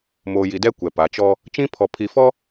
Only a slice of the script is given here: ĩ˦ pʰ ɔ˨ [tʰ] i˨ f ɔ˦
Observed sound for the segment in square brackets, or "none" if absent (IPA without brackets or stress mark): pʰ